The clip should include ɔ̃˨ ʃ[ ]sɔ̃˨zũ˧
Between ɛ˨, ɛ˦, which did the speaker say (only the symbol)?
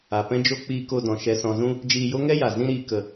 ɛ˨